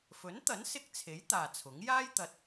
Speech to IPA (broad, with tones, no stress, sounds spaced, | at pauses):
f ɵ˨˥ n t̪ ɐ˨˥ n s ɪ˧ k̚ t͡sʰ e˨˥ j t̪ aː˨ t͡sʰ ʊ˨˥ ŋ j aː˥ j t̪ ɐ˨ t̚